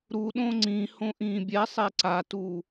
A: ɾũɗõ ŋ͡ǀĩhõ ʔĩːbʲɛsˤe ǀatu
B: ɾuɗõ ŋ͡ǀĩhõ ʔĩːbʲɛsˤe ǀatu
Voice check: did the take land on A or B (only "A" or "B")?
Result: B